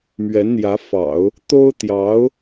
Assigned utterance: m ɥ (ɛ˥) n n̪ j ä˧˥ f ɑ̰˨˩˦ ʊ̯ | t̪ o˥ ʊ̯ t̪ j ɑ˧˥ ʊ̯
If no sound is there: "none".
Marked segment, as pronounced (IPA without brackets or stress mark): ɛ˧˥